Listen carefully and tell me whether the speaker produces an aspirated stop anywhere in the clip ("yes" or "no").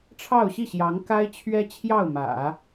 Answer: yes